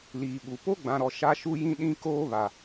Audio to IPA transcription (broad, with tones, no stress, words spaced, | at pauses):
liː˨ɓu˨ po˦ɡ͡bã˨ɾɔ˨ ʃa˦ʃu˦jĩ˦ ɗĩ˦koː˦βa˨